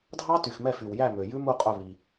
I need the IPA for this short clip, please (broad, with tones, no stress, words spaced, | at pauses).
dʱɑ˦˥ty˨xmɛ˦˨ fy˨wjæ˦˨mø˨ jʉ˦˥mu˦˨qʼœ˦˨ βi˨